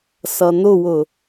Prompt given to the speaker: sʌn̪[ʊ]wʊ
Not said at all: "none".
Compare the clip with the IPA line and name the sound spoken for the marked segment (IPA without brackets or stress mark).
ʊ